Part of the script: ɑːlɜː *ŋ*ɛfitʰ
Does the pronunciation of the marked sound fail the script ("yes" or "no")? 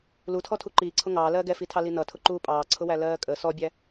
yes